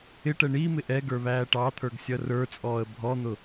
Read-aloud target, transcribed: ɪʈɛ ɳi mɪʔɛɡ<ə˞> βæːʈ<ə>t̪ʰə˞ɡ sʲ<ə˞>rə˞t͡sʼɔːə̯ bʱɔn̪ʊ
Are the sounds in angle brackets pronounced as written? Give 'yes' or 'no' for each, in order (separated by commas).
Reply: yes, no, no